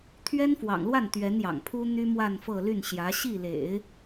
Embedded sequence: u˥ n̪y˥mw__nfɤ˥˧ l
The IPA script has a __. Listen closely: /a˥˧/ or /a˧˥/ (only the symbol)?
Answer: a˥˧